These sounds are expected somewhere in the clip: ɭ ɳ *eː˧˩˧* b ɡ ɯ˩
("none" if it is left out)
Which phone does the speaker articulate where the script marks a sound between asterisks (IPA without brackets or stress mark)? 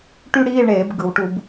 eː˧˩˧